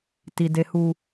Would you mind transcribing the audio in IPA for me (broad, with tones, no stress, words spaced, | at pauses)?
ti˨ de˨huː˨